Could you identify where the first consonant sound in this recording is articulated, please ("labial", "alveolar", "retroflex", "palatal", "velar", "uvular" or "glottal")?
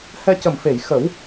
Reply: glottal